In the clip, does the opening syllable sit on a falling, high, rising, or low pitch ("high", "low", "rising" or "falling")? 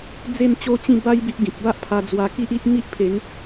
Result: falling